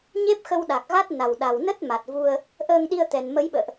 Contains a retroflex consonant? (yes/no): no